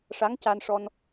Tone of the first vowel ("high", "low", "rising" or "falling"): rising